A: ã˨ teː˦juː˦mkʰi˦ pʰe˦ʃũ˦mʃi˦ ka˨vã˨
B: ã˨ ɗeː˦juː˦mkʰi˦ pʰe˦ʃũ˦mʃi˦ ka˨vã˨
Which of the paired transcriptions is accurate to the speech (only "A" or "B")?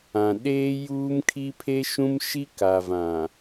B